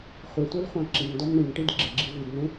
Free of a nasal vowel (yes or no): no